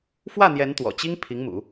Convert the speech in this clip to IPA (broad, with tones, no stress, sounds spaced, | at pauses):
f w ä˥˩ n̪ j ɛ˧˥ n t̪ w ɔ̰˨˩ t͡ɕ i˥ ŋ pʰ i˧˥ ŋ m ṵ˨˩˦